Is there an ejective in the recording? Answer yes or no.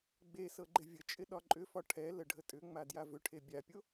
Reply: yes